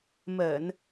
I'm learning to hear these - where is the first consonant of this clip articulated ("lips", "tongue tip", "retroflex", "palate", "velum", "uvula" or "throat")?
lips